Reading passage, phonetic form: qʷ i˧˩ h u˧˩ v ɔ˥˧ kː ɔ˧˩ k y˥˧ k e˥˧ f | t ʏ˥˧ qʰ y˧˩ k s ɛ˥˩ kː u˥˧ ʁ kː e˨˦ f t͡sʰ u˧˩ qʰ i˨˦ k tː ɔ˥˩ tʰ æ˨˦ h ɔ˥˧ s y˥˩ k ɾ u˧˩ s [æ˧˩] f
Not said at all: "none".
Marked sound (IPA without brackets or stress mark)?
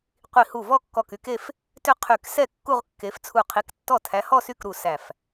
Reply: æ˧˩